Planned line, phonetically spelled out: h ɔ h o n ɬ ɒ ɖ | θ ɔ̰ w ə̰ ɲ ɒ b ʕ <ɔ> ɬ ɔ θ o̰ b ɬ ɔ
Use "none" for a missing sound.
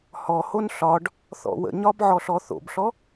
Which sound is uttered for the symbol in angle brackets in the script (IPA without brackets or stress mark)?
ɔ